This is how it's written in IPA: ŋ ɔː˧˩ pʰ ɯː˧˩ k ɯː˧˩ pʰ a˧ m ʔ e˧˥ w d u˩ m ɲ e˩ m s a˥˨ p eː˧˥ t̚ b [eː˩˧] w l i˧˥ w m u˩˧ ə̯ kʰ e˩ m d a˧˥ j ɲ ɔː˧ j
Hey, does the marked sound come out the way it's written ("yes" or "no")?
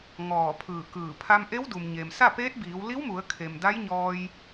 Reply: no